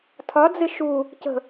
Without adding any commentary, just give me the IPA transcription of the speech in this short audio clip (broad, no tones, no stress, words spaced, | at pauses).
tʰɒd͡zɪ ʃu | cə̤